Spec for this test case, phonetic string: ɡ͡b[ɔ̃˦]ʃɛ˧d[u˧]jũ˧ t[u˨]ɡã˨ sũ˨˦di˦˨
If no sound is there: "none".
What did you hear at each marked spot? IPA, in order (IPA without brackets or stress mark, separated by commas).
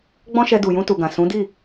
ɔ̃˦, u˨, u˨